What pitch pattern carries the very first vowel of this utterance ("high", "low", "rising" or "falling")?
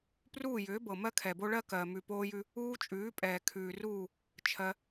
falling